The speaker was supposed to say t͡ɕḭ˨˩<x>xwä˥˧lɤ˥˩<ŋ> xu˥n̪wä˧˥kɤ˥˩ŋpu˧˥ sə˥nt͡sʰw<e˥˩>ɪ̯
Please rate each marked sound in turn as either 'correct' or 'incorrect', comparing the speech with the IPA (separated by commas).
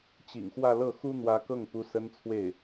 incorrect, incorrect, correct